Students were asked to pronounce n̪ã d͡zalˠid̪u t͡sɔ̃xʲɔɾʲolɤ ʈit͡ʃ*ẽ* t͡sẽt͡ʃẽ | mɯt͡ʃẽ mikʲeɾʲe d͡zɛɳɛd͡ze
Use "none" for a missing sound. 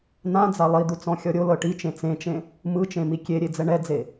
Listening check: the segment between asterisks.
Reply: ẽ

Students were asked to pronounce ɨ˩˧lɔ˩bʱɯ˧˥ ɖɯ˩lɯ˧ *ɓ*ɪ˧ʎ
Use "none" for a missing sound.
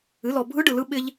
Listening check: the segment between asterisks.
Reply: ɓ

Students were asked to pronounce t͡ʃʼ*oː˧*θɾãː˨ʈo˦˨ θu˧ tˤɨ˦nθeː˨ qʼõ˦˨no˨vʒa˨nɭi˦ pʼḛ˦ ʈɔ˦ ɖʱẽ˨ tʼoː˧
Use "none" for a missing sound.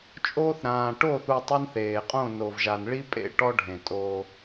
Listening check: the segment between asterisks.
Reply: oː˧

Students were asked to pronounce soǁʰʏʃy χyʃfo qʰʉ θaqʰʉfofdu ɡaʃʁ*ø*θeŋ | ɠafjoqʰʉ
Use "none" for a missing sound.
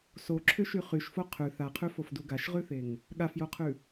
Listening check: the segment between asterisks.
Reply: ʉ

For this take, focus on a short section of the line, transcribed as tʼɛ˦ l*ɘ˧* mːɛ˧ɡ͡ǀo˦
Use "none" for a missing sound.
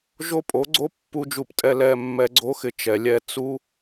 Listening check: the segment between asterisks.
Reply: ɛ˧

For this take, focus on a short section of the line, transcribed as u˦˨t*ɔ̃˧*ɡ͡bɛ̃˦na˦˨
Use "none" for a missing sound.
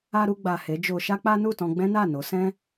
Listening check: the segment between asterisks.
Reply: ɔ̃˧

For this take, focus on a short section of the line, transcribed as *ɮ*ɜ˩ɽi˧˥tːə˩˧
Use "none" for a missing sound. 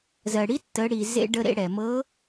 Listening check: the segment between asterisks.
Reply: z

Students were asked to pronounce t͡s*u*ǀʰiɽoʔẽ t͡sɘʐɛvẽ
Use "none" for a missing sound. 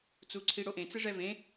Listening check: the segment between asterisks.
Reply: u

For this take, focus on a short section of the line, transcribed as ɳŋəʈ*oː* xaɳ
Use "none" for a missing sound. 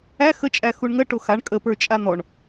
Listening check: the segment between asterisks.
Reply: o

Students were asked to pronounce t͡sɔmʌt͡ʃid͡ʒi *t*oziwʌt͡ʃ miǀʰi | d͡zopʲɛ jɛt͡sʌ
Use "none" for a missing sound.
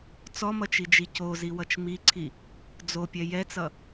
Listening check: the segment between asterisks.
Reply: c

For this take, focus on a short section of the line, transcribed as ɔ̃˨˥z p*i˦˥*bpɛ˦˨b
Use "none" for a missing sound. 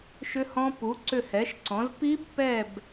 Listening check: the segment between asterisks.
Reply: i˦˥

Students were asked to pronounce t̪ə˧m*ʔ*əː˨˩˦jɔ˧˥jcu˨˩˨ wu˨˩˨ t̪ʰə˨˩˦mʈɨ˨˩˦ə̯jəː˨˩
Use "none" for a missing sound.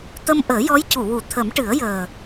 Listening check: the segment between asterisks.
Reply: ʔ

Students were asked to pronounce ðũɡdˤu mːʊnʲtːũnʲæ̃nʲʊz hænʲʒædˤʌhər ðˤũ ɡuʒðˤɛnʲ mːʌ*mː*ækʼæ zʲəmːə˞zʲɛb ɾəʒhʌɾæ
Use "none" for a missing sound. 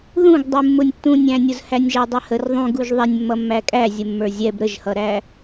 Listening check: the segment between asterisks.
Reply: mː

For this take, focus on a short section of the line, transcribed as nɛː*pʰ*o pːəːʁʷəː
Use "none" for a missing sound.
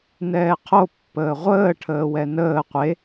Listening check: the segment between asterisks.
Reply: qʰ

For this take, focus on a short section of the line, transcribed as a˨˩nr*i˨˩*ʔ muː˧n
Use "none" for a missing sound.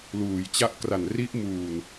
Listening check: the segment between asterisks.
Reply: i˦˥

